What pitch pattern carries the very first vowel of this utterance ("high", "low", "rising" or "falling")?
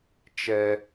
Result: high